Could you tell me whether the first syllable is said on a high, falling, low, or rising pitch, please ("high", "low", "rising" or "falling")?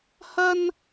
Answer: high